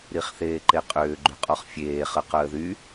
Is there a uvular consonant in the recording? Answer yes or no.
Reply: yes